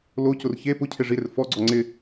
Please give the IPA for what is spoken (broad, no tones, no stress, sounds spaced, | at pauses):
l o c ʊ r ç e p ʊ cʰ e ʐ i ɾ ɪ r f ɔ ɡ͡ǀ ɔ ŋ͡ǀ ɪ